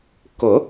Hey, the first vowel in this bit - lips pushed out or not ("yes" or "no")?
yes